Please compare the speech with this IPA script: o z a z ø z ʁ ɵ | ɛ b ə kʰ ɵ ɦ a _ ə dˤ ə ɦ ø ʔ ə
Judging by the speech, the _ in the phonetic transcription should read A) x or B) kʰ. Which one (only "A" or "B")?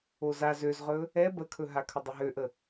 B